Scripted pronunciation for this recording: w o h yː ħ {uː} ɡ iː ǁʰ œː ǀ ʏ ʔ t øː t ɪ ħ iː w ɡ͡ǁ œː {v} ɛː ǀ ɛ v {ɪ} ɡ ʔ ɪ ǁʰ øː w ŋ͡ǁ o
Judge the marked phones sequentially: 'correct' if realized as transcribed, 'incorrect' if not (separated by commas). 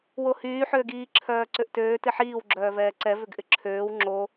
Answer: incorrect, correct, incorrect